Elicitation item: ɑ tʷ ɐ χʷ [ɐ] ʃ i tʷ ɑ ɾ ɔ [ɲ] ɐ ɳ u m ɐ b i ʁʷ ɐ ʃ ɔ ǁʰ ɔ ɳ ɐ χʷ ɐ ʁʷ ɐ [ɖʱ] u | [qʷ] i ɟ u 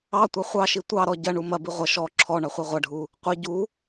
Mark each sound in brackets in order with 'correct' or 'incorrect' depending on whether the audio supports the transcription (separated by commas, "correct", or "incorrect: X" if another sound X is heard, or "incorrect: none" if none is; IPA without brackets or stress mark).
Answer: incorrect: ɑ, incorrect: ɟ, correct, correct